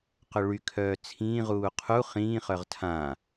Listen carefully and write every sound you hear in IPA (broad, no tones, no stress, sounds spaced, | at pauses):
q ʊ ɭ y kʰ œː t͡sʰ ĩː ʁ uː qʰ u χ ĩː χ œ ʁ tʰ ã